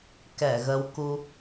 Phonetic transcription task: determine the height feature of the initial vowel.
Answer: mid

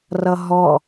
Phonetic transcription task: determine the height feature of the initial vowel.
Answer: mid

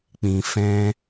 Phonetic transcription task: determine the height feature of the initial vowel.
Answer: high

